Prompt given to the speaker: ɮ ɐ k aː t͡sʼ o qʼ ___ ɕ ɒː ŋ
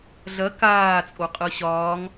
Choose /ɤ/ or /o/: ɤ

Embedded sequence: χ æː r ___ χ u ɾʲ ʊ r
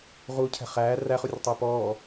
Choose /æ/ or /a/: æ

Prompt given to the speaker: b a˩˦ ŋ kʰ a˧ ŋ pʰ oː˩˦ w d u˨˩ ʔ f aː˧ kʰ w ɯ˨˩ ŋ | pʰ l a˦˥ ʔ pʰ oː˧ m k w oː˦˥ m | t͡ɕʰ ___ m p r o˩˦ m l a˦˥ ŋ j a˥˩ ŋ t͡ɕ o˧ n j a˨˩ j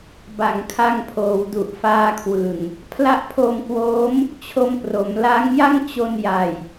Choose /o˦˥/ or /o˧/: o˧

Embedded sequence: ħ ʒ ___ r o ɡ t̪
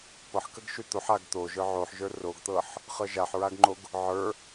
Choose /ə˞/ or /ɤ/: ə˞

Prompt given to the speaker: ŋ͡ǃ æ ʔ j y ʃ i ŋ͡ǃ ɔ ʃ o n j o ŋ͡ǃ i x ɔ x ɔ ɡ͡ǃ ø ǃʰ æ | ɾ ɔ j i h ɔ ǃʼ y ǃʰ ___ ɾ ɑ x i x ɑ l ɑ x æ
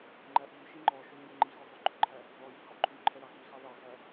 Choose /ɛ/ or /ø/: ɛ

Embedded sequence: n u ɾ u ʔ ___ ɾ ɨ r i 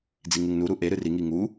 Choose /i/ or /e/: e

